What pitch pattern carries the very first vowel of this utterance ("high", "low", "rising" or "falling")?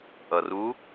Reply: low